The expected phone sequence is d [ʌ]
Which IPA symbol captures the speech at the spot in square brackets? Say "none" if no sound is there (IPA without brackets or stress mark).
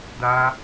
a